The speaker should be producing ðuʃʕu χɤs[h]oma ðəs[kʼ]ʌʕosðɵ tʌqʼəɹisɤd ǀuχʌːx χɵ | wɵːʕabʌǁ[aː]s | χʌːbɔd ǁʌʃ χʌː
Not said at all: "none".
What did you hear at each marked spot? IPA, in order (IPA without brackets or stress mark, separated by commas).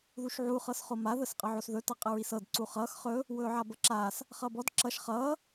χ, qʼ, aː